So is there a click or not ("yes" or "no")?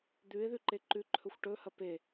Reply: yes